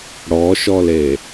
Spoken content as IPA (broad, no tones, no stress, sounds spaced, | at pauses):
ɽ ɔ ʃ ɔ l e